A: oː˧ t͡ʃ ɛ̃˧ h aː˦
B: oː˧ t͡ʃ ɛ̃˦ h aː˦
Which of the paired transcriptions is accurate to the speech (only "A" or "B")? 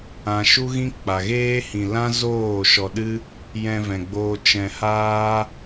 A